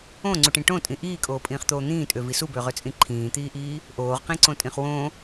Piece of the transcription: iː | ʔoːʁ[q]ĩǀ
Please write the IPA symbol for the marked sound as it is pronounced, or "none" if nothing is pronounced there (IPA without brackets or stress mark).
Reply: q